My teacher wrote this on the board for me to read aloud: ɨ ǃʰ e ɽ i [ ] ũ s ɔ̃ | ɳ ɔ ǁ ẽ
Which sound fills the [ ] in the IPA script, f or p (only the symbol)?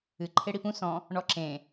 p